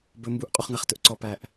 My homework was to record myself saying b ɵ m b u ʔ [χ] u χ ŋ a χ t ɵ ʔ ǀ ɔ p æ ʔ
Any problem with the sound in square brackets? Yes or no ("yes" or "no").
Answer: yes